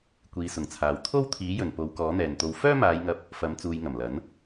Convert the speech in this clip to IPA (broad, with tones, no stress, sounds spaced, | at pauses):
kʷ iː˨˧ s ʊ˨˩ ŋ t͡sʰ aː˨ w t̪ʰ o˥ w t̪ʰ iː˨˥ j ɵ˨˩ n p o˨˧ w k ɔː˨˥ n̪ ɛː˨˩ n t̪ o˧ w f œː˥ m aː˨˧ j ŋ ɐ˧ p̚ | f ɐ˨˥ m t͡s uː˨ j ŋ ɐ˨˩ m l ɐ˨˥ n